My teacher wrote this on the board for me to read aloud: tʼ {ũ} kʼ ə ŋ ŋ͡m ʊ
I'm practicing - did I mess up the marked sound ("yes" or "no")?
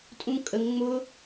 no